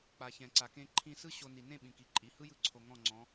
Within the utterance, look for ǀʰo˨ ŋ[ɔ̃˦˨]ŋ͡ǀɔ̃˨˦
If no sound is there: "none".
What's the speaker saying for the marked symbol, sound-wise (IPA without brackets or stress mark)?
ɔ̃˦˨